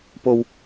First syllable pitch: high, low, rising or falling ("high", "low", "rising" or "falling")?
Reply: high